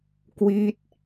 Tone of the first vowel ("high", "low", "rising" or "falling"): falling